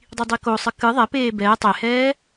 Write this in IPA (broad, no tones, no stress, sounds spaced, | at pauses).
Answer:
dˤ i dˤ i k o sˤ ɨ k ɨ ðˤ ɛ p eː b ɛː tˤ e h ɛː